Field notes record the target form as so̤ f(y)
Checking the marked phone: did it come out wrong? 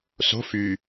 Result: no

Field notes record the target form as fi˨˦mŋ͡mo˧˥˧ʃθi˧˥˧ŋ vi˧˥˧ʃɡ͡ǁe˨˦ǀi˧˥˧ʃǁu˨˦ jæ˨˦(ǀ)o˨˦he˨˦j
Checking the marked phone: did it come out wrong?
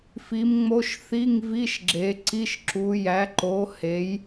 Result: yes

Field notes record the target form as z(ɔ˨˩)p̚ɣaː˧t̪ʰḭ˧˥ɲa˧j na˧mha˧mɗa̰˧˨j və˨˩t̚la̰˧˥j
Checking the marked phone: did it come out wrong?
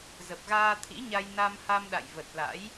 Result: yes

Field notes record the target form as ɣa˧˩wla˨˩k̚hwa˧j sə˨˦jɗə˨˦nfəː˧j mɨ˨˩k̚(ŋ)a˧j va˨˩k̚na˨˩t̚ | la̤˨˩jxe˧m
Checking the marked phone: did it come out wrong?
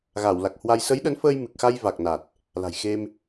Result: yes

